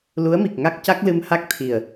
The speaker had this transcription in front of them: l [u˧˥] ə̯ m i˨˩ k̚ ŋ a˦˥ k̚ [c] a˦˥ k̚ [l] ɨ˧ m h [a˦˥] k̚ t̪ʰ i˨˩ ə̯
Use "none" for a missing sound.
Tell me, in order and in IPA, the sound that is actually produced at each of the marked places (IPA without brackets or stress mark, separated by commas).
u˧˥, c, l, a˦˥